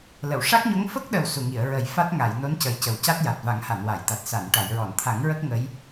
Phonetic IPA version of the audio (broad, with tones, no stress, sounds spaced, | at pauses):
l ə˨˩˨ w ʂ a˦˥ k̚ ɲ o˧˥ ŋ f ə˦˥ k̚ ɗ ə˨˩ w s u˨˩ ŋ i˨˩˨ ə̯ ɹ ə˨˩ j f a˦˥ t̚ ŋ a˨˩˨ j n o˧˥ n c ə˨˩ j c ə˨˩ w c a˦˥ t̚ j a˨˩ t̚ v a˨˩˦ ŋ h a˨˩˨ n w a˨˩˨ j t̪ a˨˩ t̚ s a˨˩˨ n ʈ a˨˩˨ j ɹ ɔ˨˩˨ n t̪ʰ a˨˩˦ ŋ ɹ ə˦˥ k̚ ŋ ə˧˥ j